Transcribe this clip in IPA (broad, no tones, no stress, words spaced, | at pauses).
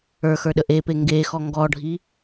ə˞xə˞ ɗəʔepe ŋɡexɔ ŋɡɔɖʱi